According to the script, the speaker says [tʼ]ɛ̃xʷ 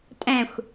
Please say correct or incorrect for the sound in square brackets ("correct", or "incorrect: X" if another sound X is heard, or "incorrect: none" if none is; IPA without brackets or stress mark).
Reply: correct